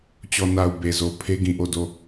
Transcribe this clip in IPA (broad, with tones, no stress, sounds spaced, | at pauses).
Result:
t͡ɕ ɔ˨ n a˨ ʊ̯ b e˨ z o˨ pʰ e˦ ɡ ĩ˨ ʔ o˦˨ d o˦˨